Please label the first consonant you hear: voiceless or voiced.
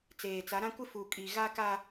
voiceless